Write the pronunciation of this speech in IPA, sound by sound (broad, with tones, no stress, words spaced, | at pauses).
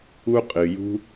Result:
u˥qʼɨ˩jṳ˥